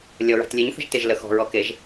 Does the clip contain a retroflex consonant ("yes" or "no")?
no